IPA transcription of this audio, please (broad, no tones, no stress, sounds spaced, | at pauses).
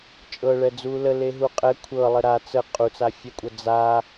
t͡ʃʼ ɤ ɭ ɛ d͡z u l ə l e ɦ u qʼ ɛ kʷʰ ɤ lˠ ə ɾ a t͡s ə qʼ u t͡s a fʲ ɛ kʷʼ ɤ d͡z a